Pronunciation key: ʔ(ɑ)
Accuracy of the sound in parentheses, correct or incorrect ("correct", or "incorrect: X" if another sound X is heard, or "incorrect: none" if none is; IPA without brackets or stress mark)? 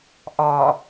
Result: incorrect: ɒ